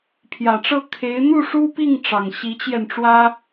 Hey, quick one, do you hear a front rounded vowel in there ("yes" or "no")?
no